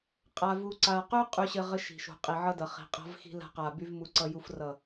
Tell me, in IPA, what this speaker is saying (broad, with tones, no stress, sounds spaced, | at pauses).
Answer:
qʼ a˨ v u˨ ǀ a˨ q y˦ qʼ y˦ ɕ ɘ˦ ʁ ɘ˦ ʃ i̤˨ ʃ ṳ˨ qʼ i˨ ʕ ʌ˦ d ʌ˨ χ i̤˨ qʼ a̤˦ v x i̤˦ l a̤˦ q a˨ b y˦ v m u˦ ǀ ʌ˦ j u˦ f r ʌ˦˨